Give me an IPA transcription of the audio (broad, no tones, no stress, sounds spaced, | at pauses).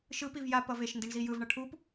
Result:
ʃ ɯ p i v j a p ʌ v e ʃ n d i ɳ z i j ɯ v ɳ ʌ ʈʰ u p